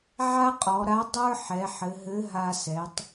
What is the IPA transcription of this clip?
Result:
ʕ a˥ qʼ ɔ˩˧ ɾ a˧˥ dˤ ə˞˥ ħ ɛ˩˧ ħ ɘ˩˧ ɦ ɘ˧˥ ɦ a˧ s ɛ˩˧ tˤ

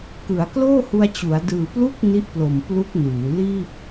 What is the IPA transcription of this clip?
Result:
k ɯ˩˦ a̯ k l oː˥˩ h u˧ a̯ t͡ɕ u˩˦ a̯ d ɯː˨˩ p l u˥˩ k̚ n i˦˥ ʔ p l o˨˩ m p l u˦˥ k̚ n uː˩˦ l iː˥˩ p̚

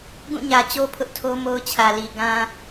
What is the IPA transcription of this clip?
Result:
ɡ ũ˦˨ ɲ ä˨ t͡ɕ o˦ pʰ ʊ˦ ʔ tʰ o˦ m o˦ ʊ̯ t͡ɕʰ ä˨ l i˨ ɡ ã˦

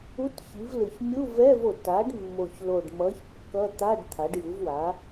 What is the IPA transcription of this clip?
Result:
u˧˥˧ t ç i˩˥ v l ɯ˨˩ ç mʲ u˧˥˧ v ɛ˧˥˧ v o˨˩ t a˩˥ ɖ mː o˨˩ ç l o˨˩ ɖ m ʌ˩˥ ç kː ʌ˧˥˧ t̪ a˧˥˧ ɖ t̪ʰ a˩˥ ɖ j ɯ˩˥ v w a˩˥

